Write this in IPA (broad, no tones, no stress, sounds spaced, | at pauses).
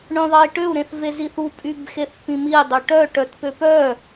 ɳ œ̃ ðˤ ɐ i̯ ʈ ø u̯ ɾ ẽ θ v e z i θ u pʼ y b x e θ p ĩ m i dˤ ø ʈ œ ʈ œ t p ø p œ